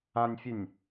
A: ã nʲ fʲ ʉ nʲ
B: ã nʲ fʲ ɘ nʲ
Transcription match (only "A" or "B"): A